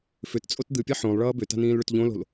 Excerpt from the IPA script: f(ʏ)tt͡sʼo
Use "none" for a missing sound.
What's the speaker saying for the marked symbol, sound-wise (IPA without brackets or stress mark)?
ʏ